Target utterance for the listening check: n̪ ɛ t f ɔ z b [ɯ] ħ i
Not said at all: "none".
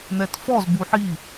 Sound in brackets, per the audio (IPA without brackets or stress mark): u